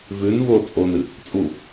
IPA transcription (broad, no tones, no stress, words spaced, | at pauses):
vʉn vo t͡sʼonɨ | t͡sʼu